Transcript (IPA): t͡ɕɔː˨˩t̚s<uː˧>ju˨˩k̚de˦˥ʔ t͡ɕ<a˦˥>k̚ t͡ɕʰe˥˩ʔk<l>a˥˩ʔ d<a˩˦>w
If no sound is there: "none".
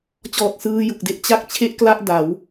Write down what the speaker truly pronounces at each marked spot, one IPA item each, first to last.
ɯː˧, a˥˩, l, a˩˦

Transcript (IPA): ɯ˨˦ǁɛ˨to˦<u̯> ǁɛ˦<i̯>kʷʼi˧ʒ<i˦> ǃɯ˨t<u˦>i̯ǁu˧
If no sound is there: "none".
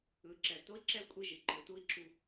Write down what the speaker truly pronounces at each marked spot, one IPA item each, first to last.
i̯, u̯, i˨, u˦

